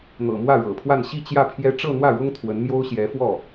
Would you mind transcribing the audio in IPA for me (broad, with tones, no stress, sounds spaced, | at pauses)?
n̪ ɤ̰˨˩ m w ä˥˩ ɻ ɤ̰˨˩ pʰ w a˥˧ n ɕ i˥˧ t͡ɕ j ä˥˩ pʰ j ɛ˥ ʈ͡ʂ ɤ˥˧ n̪ w ä˥˩ ɻ ʊ˥ ŋ t̪ʰ w ə˧˥ n m j o˥ ʊ̯ ɕ j ɛ˧˥ f w ɔ˥˩